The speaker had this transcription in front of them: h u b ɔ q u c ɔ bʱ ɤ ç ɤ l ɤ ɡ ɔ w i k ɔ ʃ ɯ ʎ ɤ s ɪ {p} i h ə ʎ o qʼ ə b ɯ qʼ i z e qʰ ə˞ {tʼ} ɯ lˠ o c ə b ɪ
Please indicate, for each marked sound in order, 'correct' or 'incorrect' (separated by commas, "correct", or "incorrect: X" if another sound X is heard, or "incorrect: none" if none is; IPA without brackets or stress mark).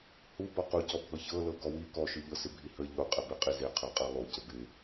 incorrect: bʱ, incorrect: qʼ